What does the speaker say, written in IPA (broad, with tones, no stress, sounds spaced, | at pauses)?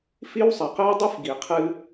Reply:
f i˦ w sˤ ɛ˩ q əː˥ ɪ̯ dˤ u˥ f ɡ iː˨ qʰ ɨ˦